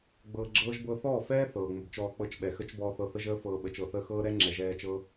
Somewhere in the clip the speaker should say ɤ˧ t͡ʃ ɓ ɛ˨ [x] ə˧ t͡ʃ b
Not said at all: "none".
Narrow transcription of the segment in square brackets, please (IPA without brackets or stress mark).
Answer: x